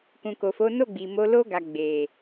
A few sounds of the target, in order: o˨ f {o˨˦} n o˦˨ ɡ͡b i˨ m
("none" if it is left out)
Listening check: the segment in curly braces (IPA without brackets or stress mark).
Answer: o˨˦